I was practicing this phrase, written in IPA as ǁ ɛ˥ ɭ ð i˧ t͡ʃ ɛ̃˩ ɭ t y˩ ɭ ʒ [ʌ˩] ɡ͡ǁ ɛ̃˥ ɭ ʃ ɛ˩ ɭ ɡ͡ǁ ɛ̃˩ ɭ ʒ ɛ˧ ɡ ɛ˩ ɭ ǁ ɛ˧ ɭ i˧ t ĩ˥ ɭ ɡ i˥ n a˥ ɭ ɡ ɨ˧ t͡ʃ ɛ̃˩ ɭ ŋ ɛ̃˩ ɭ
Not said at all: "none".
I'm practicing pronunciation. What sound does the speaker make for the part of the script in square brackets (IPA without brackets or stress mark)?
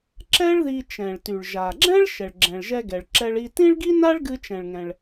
a˩